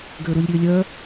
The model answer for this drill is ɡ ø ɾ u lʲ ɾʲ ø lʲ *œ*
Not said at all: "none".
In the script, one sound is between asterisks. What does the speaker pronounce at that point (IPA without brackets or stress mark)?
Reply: œ